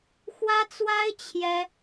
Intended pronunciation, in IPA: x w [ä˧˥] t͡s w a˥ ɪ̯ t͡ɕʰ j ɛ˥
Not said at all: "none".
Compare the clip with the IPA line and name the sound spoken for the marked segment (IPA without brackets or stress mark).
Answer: ä˥